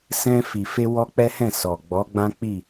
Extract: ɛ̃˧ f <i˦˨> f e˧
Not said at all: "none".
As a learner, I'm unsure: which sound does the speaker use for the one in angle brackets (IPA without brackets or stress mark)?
i˨